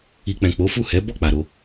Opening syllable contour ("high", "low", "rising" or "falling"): low